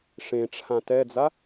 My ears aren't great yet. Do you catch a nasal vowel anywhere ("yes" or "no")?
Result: yes